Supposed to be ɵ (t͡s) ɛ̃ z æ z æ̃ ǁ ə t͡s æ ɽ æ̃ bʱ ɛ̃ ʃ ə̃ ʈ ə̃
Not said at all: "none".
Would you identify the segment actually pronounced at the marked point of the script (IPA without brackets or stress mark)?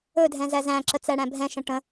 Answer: dʱ